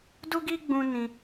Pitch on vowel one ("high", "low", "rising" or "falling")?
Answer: high